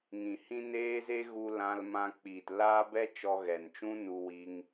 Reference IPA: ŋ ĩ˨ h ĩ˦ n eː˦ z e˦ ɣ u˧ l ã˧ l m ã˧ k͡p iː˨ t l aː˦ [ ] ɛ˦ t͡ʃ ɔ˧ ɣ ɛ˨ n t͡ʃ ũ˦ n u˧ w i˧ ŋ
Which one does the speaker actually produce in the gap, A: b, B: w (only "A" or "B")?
A